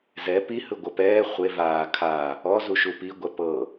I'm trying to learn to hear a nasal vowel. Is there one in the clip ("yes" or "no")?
no